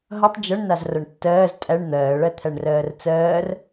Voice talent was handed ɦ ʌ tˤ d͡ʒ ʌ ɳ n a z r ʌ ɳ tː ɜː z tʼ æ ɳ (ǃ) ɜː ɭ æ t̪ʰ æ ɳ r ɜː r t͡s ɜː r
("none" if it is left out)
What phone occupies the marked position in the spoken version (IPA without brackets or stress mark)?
n̪